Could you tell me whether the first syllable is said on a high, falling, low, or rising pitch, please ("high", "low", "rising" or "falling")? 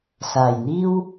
low